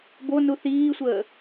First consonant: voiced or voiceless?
voiced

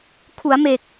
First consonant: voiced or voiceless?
voiceless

